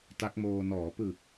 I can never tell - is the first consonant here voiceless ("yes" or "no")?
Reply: yes